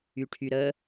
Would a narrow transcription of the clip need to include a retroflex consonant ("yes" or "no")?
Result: yes